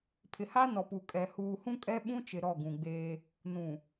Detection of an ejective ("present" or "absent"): present